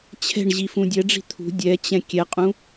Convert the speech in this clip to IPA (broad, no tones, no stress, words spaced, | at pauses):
t͡ɕʰɛ̤ɳ ʑifũdʲɛɖ͡ʐi̤ t̪ʰṳ dʲɛt͡ɕɛ̃ kʲɛqʼũ